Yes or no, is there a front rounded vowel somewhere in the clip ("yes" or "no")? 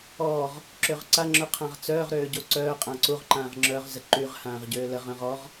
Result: yes